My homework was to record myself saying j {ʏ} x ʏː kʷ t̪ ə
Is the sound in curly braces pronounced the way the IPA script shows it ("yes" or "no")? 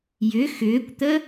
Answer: yes